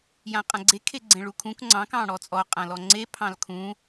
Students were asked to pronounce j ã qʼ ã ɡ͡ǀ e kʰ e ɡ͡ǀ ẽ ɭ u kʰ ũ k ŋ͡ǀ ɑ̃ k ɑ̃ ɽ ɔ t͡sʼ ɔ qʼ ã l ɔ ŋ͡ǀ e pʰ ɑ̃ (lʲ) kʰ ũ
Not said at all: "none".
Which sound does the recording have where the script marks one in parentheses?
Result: l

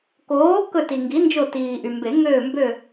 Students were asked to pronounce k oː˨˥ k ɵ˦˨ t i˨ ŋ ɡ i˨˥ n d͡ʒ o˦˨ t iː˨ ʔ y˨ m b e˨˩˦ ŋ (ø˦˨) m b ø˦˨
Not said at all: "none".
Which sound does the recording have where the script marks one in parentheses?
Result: øː˦˨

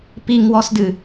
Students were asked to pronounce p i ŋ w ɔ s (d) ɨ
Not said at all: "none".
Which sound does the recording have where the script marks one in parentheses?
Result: d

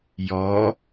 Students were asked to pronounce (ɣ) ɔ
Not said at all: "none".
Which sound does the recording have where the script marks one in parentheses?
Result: j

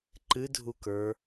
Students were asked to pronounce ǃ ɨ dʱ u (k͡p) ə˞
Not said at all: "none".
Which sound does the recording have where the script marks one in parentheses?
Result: k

